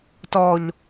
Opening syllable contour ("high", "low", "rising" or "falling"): low